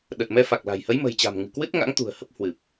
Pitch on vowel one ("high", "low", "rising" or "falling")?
low